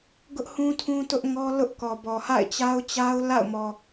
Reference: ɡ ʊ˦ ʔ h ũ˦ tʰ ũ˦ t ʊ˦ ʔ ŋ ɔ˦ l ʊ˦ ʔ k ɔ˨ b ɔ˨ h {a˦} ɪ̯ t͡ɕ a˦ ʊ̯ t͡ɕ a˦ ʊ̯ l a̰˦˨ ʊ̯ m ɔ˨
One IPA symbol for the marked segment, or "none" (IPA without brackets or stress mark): a̰˦˨